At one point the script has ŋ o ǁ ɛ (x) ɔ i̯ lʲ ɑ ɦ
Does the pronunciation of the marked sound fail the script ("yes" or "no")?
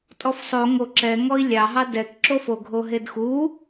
yes